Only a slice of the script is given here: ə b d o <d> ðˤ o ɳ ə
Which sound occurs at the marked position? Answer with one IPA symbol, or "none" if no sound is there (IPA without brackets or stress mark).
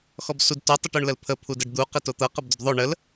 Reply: d